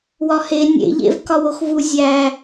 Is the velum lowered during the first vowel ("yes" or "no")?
no